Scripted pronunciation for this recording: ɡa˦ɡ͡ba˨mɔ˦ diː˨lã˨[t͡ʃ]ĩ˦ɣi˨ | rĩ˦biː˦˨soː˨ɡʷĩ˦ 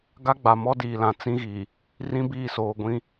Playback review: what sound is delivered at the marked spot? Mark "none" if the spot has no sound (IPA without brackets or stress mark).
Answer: t͡s